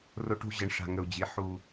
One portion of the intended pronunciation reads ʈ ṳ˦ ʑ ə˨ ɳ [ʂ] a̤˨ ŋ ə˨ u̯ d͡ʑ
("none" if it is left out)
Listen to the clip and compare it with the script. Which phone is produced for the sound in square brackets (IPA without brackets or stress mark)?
ʂ